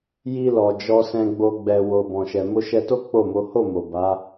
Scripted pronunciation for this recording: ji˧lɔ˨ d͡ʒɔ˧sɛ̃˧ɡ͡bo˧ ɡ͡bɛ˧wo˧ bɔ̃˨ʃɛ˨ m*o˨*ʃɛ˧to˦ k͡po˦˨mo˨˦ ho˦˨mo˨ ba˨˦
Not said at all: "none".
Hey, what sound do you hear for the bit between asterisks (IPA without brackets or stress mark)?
o˧